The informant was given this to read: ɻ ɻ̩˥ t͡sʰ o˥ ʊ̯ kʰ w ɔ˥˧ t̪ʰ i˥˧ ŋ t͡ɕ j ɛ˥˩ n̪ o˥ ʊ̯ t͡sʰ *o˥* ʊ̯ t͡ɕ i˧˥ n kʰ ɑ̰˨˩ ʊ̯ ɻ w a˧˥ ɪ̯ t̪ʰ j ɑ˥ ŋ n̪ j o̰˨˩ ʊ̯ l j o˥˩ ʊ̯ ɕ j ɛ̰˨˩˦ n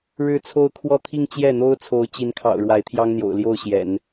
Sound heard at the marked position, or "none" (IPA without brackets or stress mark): o˧˥